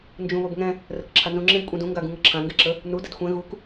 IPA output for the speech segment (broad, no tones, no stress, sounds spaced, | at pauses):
n d͡ʒ ũ β o b ŋ ɛ̃ | r ə k ǁʰ a n z ũ ŋ͡ǁ ẽ b kʷʼ ɛ̃ d ũ ŋ ɡ a ɡ ũ ŋ ʌ ǁʰ ã ŋ ɡ ɛ ǁ ə | n u d ə d xʷ ɛ̃ ɣ u k